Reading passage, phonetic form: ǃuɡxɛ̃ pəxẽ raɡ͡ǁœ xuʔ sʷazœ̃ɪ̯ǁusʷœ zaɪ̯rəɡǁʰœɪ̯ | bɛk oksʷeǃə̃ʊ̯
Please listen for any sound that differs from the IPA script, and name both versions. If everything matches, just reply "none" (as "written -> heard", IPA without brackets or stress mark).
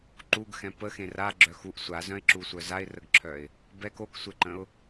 none